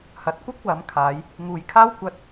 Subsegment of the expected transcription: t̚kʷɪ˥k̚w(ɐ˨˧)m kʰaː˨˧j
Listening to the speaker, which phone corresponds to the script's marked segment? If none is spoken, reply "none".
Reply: ɐ˨˧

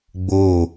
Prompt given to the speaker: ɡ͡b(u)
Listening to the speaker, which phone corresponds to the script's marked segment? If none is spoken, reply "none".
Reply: o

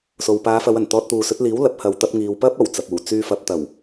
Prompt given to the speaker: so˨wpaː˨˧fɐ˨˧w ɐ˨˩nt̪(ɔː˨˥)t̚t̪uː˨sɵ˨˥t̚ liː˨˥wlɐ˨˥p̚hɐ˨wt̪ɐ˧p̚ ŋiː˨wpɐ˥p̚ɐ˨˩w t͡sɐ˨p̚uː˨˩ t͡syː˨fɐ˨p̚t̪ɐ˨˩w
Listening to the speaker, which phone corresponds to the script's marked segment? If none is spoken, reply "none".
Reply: ɔː˧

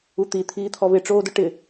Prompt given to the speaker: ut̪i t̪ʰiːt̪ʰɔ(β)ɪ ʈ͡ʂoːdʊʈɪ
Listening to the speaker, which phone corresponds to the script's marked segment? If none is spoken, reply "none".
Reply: β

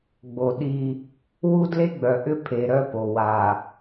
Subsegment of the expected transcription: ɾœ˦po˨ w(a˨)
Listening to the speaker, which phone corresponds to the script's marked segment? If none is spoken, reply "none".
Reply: a˨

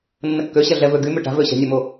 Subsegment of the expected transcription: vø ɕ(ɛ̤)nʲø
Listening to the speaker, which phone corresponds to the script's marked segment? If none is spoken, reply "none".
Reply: ɛ̤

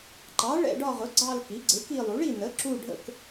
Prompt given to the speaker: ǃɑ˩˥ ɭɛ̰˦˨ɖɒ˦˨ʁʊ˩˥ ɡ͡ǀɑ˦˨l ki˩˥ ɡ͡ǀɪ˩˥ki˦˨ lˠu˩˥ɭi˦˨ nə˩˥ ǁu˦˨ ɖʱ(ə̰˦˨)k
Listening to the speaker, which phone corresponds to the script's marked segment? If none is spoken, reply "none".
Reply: ə̰˦˨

